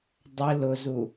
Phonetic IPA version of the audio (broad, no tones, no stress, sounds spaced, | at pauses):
dˤ ɪ l ʊ z u